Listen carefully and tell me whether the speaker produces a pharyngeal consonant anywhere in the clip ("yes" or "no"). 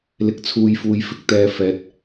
no